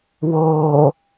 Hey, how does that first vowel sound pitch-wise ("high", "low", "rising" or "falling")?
low